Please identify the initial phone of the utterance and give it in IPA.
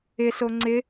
ɪ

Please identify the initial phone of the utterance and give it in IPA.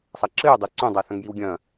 sˤ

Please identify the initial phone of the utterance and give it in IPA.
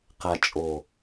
q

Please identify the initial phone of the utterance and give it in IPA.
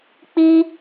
k͡p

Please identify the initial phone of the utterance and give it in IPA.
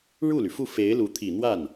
ɻ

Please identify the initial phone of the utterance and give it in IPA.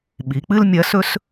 ɓ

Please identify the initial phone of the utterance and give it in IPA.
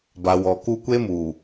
b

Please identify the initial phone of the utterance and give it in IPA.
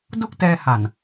d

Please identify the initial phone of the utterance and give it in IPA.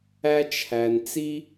æ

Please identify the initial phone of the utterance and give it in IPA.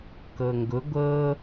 k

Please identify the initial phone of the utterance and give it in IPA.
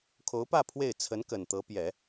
kʰ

